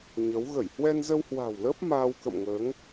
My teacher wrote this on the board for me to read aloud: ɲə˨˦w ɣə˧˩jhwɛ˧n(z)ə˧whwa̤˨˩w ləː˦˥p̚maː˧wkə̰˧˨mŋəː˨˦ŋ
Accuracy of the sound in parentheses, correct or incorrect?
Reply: correct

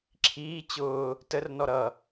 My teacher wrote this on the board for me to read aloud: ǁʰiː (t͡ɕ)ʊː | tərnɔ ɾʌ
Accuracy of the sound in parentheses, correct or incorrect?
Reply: correct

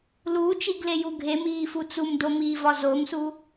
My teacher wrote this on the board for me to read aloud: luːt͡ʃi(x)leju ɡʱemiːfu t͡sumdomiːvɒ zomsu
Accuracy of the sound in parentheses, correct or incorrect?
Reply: incorrect: ɡ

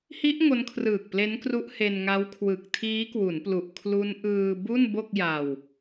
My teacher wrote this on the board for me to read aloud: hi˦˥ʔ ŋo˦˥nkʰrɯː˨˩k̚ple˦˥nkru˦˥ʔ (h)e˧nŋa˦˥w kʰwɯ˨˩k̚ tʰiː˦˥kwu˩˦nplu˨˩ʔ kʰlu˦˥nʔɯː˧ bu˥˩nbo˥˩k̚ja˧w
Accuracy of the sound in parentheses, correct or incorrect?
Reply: correct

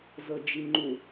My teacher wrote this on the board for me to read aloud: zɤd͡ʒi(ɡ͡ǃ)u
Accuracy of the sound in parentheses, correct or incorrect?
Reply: incorrect: ŋ͡ǃ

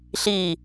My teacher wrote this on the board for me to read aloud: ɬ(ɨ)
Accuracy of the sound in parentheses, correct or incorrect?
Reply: incorrect: i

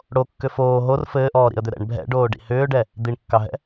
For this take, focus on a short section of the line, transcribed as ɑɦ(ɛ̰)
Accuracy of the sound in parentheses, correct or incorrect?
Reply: correct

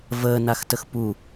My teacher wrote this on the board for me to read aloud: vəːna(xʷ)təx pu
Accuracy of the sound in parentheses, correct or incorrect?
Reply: incorrect: x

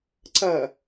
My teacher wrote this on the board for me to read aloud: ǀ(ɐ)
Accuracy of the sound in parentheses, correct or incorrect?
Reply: correct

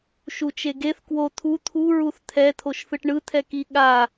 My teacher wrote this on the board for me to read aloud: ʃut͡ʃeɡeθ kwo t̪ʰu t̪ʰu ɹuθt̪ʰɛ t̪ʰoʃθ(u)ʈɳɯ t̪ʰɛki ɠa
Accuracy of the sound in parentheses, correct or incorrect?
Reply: incorrect: ɯ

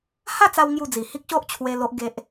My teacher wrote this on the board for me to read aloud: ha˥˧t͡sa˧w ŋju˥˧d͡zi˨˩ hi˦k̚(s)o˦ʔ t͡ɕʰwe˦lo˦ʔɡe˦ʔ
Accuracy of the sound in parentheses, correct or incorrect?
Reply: incorrect: ɕ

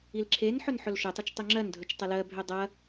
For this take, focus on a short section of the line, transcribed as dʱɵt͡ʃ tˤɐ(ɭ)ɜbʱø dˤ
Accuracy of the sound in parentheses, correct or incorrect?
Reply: incorrect: l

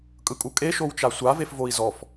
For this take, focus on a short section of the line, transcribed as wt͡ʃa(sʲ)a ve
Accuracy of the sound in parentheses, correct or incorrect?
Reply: incorrect: sʷ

